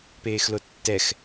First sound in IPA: p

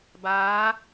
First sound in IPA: b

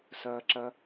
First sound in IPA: s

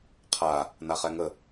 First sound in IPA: qʰ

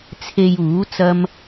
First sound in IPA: t͡sʰ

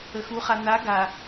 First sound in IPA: ə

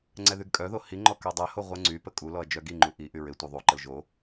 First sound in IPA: ŋ͡ǀ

